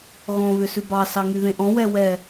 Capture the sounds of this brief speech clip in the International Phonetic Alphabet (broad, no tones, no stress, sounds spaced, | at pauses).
ɣ ɔ̃ β ʏ s ʉ b ɑ s ɑ ŋ y ð ẽ ʔ ɔ̃ w ɛ w ɛ